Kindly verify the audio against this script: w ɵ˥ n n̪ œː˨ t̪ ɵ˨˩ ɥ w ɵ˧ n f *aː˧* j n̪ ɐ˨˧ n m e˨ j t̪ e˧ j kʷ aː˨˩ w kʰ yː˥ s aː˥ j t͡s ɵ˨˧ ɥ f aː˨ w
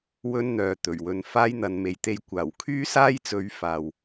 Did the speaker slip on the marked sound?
yes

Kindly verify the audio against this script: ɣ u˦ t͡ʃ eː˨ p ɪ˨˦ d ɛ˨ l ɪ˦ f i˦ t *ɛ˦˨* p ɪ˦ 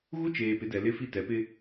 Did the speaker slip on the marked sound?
yes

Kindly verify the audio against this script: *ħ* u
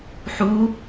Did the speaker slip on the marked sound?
no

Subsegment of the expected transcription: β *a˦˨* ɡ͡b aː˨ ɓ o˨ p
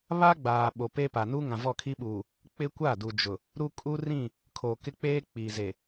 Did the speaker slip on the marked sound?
yes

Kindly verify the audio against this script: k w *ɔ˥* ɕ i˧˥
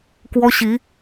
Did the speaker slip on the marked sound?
no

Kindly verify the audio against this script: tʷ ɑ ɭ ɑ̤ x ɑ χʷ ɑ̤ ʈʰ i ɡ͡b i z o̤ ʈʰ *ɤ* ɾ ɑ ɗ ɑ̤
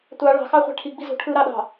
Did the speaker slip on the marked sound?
yes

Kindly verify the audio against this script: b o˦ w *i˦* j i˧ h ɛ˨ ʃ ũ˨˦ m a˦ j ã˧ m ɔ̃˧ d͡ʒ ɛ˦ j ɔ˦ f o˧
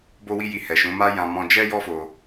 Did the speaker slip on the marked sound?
no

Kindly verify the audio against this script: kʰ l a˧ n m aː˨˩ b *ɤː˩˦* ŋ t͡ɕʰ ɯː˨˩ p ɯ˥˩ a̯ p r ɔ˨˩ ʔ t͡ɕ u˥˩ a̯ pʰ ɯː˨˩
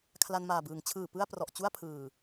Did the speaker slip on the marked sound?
yes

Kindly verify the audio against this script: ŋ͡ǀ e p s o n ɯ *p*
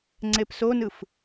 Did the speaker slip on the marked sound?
yes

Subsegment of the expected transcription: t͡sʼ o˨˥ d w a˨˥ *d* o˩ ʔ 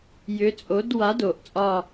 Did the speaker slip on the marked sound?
no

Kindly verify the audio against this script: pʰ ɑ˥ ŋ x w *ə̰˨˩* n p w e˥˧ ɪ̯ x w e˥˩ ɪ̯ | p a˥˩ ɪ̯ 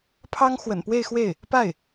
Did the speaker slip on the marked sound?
no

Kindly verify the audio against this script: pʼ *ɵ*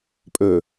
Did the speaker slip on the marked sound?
no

